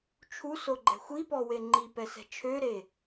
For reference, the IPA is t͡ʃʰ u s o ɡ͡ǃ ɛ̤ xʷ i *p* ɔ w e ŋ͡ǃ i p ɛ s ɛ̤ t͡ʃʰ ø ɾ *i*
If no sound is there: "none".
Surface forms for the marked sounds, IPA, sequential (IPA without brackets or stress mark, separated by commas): p, e